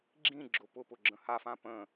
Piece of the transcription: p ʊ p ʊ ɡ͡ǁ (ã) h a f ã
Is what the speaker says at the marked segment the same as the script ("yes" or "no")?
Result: no